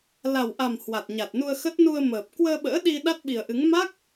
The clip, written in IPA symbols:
la˨˩wʔa˨˩m hwa˨˩t̚ɲa˨˩t̚nu˧ə̯xə˦˥t̚ nu˧ə̯məː˨˩p̚ kwəː˧ɓə̰ː˧˥ ɗi˧ ɗa˦˥t̚ɓi˨˩ə̯ʔɨ˨˦ŋ ma˦˥k̚

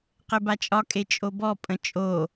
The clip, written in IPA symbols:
qɘbat͡ʃʼɒkʼe t͡ʃʼobɔpʼə̃ t͡ʃʼo

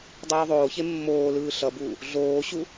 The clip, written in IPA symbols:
dˤuːðˤoːçe mːoːlɯː ɬʌbuː | ɮoːɕu

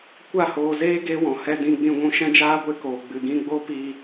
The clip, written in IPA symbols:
kʷa˦˨hoː˧zeː˦ ɡe˦ wɔ̃˨hɛ˧dĩ˧ ɡ͡bĩ˧ɡʷũ˧ ʃɛ̃˦d͡ʒaː˦ɡʷe˧koː˨ ɡ͡bɨ˨ɡĩ˧ ɡ͡bo˦pi˧

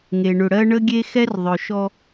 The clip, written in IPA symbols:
ŋe˨ɳʏ˨ ɽɜ˦ ɳə˦ɡʲe˦xɛ˦r ðˤœ˨ʃɔ˦

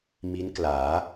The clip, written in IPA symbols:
mi˦˥nklaː˩˦

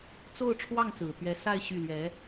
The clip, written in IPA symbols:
t͡so˥˧ʊ̯ʈ͡ʂʰwɑ˥˩ŋt͡sɹ̩˨˩ t̪ɥɛ˧˥ sa˥˧ɪ̯ ɕy˥˩ lɥɛ˧˥

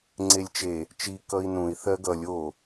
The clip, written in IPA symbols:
ŋ͡ǀelʲt͡ʃe | t͡ʃi kʌi̯nũi̯ θɜɡʌlʲ o

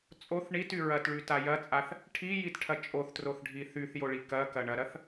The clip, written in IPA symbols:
t͡sʼoθ ɳity ɹɐtɭyta jɐt͡sʼaθ | ʈʰijitʈʰɐ t͡ʃʼoθtroθɖʱi θyθjoɭi kɐkɐ ɳɐɾɐθ

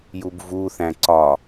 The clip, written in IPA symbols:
jubvuθæ̃ ǀɒ

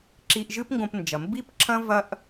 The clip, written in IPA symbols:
ǁi˧ʔʒɨ˥pŋɡõ˧pnd͡ʒɐ˩ mbi˥pǁʰɐ̃˥ vɐ˥ʔ

